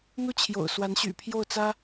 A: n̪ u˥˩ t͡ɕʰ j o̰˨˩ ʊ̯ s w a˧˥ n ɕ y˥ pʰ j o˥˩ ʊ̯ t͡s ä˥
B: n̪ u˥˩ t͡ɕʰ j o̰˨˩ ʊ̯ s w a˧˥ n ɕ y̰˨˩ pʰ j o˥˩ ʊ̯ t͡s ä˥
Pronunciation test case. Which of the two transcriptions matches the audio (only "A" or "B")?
B